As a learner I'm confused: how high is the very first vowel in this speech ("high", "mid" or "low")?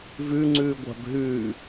high